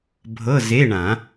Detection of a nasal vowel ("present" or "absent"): present